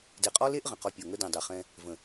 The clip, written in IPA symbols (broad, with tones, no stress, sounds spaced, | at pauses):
d e˨ qʼ ɔ˦ l e˦ ʔ ʁ ə̃˨ q ɔ˦ pʲ ɔ˨ ŋ ə˦ d ẽ˨ dˤ e˨ χ ɛ̃˦ | v ə̃˨